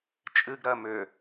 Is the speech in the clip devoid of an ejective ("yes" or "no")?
no